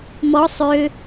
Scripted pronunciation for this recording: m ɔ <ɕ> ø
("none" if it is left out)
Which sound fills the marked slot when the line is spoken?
sˤ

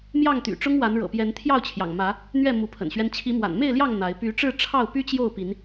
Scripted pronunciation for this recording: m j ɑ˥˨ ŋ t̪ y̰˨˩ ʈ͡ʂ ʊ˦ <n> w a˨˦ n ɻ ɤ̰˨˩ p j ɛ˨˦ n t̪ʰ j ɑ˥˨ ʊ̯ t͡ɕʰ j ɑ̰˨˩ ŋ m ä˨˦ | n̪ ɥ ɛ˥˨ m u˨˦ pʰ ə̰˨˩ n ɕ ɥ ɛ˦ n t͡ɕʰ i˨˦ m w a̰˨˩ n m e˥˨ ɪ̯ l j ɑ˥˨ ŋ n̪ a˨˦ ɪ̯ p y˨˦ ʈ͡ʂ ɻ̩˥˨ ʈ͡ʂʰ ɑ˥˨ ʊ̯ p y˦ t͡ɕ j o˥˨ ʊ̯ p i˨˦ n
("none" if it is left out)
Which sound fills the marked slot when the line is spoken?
ŋ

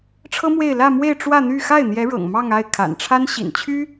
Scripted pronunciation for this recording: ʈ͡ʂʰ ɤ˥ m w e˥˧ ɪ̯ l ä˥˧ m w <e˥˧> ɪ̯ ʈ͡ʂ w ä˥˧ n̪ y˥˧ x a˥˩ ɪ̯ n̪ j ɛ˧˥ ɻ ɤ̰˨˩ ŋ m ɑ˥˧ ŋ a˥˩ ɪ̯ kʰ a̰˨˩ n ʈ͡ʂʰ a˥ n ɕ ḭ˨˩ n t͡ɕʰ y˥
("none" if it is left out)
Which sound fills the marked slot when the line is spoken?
e˥˧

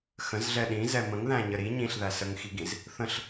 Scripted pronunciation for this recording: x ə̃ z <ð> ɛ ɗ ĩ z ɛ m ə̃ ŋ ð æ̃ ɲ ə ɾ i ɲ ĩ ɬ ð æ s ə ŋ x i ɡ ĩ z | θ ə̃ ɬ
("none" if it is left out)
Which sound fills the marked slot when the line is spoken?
ɮ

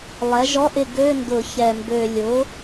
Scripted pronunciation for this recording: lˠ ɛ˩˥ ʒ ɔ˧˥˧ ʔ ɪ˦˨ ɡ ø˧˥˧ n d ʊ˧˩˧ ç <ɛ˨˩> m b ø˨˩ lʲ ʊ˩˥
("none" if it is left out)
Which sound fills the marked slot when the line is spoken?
ɛ˨˩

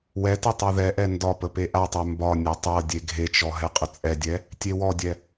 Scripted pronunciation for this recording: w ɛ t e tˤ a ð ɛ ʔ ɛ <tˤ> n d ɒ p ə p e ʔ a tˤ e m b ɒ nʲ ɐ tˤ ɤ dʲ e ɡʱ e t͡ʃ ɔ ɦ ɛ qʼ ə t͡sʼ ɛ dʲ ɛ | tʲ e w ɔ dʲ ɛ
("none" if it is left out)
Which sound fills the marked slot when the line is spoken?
none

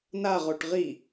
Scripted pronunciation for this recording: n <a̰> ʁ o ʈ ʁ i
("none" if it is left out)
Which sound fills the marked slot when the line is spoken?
a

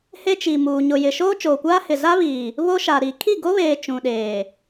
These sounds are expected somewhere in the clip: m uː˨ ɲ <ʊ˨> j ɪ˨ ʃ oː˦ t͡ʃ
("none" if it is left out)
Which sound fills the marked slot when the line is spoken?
ʊ˨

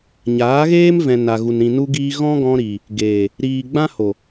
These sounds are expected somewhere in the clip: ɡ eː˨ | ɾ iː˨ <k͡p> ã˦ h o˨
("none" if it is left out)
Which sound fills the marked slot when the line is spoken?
ɡ͡b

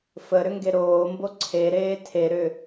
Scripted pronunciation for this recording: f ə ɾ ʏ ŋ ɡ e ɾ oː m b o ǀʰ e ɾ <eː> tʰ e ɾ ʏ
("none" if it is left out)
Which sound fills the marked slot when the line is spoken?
eː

